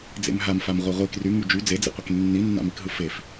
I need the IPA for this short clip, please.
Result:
d͡z ḛ m ɦ a m f a m ʁʷ i ʁʷ i k r y ŋ y d͡ʒ y d͡z e d͡z ḭ qʷ e k nː i nː a̰ m i k ɦ ɯ f e f

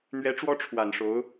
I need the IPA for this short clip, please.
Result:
n̪ ɥ ɛ˧˥ ʈ͡ʂ w ɔ˥ ʈ͡ʂʰ w a˨˩ n ʂ o˧˥ ʊ̯

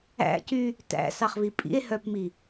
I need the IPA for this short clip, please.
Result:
æ̰ c y | t æ̰ s ɑ χ v i pʼ ḭ e̯ h œ p m i

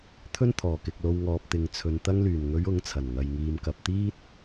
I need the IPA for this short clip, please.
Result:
t̪ʰ ɵ˥ n t̪ʰ ɔː˨˩ k ɪ˨ k̚ l o˧ w ŋ ɔː˨ p̚ t̪ ɪ˨ ŋ t͡sʰ ɵ˨ n t̪ ɐ˧ ŋ l yː˨˩ n ŋ ɵ˨˧ ɥ ʊ˨˥ ŋ t͡sʰ ɐ˨˩ n ŋ ɐ˨ j ŋ iː˨ m k ɐ˨ p̚ t̪ iː˥ t̚

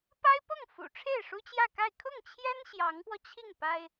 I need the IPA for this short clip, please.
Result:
p a˥ ɪ̯ p ɤ˥˩ ŋ f ṵ˨˩ ʈ͡ʂʰ e˥˩ ɪ̯ ʂ u˥ t͡ɕ j ä˥˧ k a˥˧ ɪ̯ kʰ ʊ˥˩ ŋ t͡ɕʰ j ɛ˥ n ɕ j ɑ˧˥ ŋ p w ɔ˧ t͡ɕʰ i˥˩ ŋ p a˥ ɪ̯

